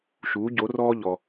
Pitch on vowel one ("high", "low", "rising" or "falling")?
rising